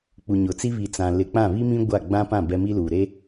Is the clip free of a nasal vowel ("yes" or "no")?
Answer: no